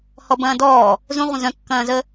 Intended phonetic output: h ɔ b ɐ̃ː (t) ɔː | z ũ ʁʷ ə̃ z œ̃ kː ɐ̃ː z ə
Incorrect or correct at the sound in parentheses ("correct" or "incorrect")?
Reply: incorrect